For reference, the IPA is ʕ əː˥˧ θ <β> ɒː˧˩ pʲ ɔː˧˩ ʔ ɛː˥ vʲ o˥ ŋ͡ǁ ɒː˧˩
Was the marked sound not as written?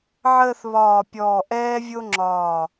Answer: no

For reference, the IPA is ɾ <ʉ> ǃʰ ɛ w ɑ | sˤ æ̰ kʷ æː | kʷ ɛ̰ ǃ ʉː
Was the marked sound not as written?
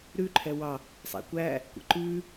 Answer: no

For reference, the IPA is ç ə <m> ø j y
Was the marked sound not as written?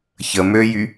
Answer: no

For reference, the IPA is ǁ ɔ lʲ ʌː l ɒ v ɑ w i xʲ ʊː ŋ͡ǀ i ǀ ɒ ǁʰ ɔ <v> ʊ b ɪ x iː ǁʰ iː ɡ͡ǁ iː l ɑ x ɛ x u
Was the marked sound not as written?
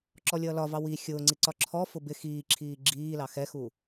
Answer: yes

